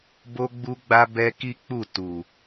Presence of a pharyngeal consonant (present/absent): absent